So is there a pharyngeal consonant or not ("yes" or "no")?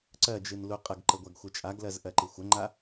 no